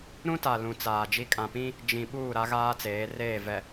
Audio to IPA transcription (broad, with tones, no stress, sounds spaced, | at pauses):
ɾ ũ˦ t a˨ l ũ˨ t͡s aː˨ d͡ʒ i˦ kʼ ã˨ p ĩ˦ | d͡ʒ ĩ˨ ɓ uː˦˨ ɾ a˦ ɣ aː˦ t͡s eː˨˦ r eː˦˨ v ɛ˨